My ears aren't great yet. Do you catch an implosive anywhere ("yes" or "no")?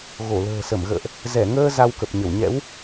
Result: no